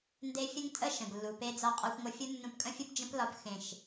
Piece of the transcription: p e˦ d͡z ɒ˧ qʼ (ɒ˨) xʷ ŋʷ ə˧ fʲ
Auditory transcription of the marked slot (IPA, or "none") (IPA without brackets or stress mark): ɒ˧